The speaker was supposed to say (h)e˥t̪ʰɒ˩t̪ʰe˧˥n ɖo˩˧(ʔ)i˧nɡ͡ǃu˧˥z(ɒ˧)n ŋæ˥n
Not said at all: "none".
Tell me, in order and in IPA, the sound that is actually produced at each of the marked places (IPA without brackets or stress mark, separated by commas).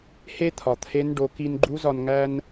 h, k, ɒ˧